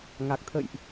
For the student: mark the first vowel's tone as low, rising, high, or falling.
low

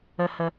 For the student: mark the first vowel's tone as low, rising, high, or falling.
low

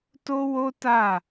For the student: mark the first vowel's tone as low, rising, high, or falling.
high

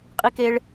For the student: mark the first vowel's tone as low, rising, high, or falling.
high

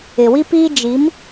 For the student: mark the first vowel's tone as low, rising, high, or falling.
low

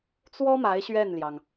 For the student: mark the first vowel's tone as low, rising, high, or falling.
high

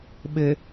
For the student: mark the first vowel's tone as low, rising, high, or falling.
low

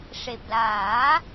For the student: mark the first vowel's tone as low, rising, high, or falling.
low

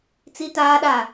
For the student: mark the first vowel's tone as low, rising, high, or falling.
high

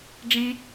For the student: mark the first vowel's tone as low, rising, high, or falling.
high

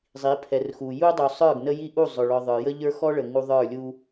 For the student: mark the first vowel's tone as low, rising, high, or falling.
rising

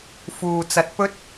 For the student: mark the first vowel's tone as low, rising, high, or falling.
low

